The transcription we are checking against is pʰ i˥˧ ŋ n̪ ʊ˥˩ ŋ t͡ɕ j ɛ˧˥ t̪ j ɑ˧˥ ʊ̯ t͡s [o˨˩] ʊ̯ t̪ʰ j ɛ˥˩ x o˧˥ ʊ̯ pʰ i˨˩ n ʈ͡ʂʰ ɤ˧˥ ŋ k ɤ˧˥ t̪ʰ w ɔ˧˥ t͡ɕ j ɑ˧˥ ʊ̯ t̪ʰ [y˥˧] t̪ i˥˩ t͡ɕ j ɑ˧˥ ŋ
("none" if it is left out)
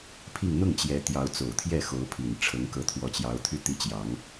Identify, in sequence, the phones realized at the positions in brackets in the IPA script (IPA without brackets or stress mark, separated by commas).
o˨˩, y˥˧